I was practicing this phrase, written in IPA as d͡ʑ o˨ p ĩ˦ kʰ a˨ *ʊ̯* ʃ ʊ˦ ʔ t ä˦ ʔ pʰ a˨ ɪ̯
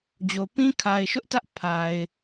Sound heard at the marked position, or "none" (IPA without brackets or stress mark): ɪ̯